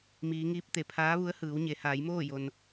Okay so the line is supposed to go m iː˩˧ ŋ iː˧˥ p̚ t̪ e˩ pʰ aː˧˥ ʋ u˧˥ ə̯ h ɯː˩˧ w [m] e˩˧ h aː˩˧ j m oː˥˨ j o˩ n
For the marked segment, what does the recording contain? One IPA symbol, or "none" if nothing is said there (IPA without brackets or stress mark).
ɲ